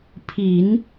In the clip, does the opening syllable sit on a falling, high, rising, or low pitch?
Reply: low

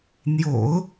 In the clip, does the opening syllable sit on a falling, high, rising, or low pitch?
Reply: low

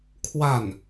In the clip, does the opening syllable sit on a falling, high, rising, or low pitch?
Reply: falling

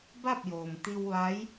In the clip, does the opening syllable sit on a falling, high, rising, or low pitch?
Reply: falling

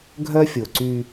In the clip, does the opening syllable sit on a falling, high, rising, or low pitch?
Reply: high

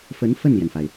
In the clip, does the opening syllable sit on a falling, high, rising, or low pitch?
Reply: rising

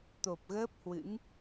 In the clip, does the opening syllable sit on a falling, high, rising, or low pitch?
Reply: low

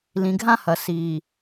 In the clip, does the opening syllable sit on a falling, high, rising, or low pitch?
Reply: low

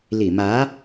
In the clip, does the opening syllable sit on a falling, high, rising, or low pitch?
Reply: low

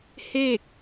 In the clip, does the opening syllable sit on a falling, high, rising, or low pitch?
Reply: falling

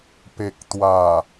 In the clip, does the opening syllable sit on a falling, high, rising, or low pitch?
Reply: low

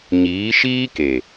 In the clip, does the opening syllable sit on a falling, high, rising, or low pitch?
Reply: rising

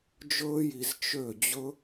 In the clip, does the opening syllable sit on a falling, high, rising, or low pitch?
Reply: high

